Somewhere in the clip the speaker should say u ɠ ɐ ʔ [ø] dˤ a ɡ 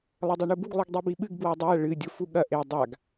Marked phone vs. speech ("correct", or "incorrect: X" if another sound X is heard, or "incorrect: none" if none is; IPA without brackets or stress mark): incorrect: e